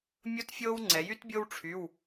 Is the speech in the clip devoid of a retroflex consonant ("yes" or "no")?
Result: no